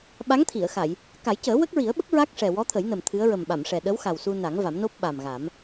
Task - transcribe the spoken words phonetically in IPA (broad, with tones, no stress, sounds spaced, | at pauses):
ɓ a˧˥ ŋ t̪ʰ i˨˩˨ ə̯ x a˨˩˨ j | k a˨˩˦ j c əː˨˩˦ w ə˦˥ k̚ ɹ i˨˩˦ ə̯ ɓ ə˦˥ k̚ ɹ a˦˥ k̚ ʂ ɛ˨˩ w ɔ˧˥ t̪ʰ ə˨˩˦ j n ə˨˩ m t̪ʰ ɨ˧˥ ə̯ ɹ ə˨˩ m ɓ a˨˩˨ m ʂ ɛ˨˩ ɗ ə˧˥ w x a˨˩ w s u˧ n a˨˩˦ ŋ v a˨˩˦ m n o˦˥ p̚ ɓ a˨˩ m ɣ a˨˩˦ m